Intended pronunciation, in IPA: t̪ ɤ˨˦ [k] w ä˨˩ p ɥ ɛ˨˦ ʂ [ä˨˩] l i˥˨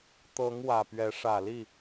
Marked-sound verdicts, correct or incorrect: incorrect, correct

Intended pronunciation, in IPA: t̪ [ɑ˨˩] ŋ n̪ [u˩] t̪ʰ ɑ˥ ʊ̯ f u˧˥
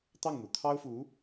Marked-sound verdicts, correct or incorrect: incorrect, correct

